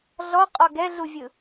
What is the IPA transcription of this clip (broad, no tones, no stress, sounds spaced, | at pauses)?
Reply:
ɮ ɔ qʼ ɔ ɡ ɛ ɮ u vʲ ɯ